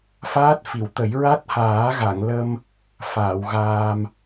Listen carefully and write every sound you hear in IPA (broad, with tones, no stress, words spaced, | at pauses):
faː˦˥t̚fi˨˩˨wt̪ə˨˩˦j ɹa˦˥t̚haː˨˩˦ɣa˨˩˨ŋlə˧m | faː˨˩˨wɣaː˧m